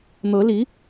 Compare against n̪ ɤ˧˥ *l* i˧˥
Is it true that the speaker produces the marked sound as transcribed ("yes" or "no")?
yes